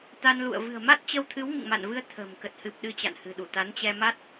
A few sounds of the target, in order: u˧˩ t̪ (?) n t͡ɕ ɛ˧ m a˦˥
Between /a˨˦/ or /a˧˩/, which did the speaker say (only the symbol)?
a˨˦